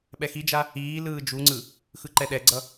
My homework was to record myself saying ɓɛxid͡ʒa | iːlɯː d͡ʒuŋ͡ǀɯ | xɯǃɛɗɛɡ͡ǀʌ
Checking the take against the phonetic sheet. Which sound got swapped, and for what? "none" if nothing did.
none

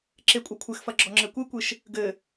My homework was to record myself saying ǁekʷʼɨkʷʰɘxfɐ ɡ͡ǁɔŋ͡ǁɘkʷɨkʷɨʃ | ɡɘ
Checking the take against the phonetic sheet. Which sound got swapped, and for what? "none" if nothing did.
none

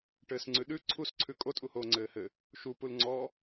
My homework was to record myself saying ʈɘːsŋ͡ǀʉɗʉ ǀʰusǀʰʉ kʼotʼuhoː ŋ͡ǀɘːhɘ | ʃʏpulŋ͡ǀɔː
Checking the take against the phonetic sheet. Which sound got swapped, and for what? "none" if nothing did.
ʏ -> u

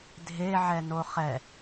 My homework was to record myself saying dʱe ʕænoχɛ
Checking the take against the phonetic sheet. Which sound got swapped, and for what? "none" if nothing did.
æ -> ɛ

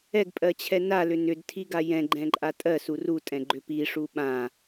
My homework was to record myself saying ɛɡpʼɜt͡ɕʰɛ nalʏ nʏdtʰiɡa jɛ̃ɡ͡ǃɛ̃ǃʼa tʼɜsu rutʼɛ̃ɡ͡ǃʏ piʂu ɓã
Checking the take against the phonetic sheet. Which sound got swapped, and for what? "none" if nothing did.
none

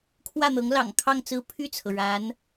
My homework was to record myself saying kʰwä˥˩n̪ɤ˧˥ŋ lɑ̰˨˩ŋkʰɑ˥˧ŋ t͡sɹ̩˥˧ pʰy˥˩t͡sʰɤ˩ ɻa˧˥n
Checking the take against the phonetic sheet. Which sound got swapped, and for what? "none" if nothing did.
none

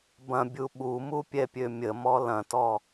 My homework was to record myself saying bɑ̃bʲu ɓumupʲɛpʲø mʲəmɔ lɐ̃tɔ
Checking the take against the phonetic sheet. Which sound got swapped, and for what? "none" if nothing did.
ɑ̃ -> ɐ̃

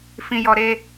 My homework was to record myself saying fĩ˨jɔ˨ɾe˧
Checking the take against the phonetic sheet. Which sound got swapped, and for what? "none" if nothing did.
none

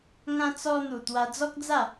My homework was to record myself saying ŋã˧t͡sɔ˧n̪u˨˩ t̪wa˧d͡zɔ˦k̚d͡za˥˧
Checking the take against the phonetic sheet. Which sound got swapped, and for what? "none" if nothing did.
none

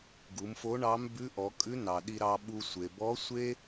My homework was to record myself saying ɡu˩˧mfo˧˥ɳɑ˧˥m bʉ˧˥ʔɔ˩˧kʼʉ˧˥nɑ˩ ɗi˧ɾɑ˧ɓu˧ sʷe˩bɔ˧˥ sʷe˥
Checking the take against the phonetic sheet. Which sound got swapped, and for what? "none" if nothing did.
none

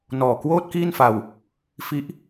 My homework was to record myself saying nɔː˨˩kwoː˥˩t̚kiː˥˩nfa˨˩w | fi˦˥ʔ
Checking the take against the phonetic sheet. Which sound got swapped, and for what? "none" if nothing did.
a˨˩ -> a˧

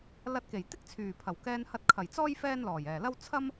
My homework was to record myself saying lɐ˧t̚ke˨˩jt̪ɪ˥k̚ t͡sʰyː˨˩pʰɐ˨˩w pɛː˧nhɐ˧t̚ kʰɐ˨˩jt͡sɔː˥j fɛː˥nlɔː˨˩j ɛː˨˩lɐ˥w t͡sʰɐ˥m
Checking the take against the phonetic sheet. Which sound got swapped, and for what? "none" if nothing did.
p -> k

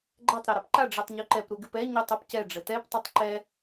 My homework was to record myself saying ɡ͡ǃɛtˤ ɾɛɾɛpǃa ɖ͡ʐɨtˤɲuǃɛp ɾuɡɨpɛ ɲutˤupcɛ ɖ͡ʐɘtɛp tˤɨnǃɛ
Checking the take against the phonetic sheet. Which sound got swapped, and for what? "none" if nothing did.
n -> tˤ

